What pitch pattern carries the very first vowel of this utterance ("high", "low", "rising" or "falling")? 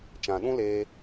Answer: low